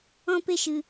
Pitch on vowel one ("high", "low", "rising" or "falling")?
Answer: high